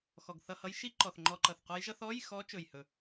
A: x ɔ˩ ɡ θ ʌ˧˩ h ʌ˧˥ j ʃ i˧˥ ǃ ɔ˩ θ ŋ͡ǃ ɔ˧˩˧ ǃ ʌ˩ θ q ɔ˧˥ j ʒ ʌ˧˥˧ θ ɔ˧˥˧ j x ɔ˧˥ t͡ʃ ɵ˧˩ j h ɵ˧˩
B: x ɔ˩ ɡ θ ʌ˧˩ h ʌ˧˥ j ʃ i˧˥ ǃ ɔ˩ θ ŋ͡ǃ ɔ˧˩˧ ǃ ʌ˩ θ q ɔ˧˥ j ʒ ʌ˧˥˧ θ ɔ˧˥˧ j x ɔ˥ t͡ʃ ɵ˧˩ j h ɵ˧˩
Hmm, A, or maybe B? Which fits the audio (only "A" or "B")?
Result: A